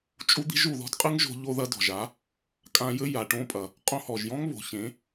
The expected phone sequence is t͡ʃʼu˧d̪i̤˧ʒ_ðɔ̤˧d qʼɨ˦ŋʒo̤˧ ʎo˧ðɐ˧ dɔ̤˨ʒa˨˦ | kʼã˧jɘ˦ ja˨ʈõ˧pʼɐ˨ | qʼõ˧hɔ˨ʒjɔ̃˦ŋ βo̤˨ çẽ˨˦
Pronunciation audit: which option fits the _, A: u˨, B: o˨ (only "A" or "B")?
A